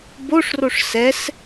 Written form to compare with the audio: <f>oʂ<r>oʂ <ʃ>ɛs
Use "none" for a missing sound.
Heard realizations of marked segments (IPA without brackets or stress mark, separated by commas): b, r, s